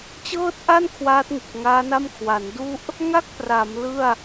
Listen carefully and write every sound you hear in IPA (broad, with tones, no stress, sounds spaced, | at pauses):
t͡ɕ ɤː˥˩ t̚ ʔ a˥˩ n kʰ w aː˦˥ t̚ ŋ ɯ˨˩ k̚ ŋ aː˦˥ n a˥˩ m kʰ w a˩˦ n d u˥˩ ʔ | ŋ a˥˩ k̚ p r a˩˦ m l ɯ˥˩ a̯